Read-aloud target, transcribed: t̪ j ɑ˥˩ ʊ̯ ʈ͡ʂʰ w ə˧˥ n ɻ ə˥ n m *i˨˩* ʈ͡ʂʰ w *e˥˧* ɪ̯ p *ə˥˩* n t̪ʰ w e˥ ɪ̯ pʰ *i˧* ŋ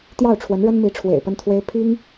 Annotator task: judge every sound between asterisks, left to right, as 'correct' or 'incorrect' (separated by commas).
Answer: incorrect, incorrect, correct, incorrect